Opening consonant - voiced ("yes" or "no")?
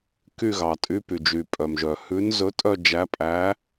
no